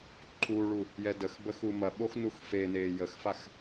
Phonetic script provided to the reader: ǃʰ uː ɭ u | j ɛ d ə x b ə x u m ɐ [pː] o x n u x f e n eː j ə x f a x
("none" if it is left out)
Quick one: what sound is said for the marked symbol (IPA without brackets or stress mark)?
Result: ɓ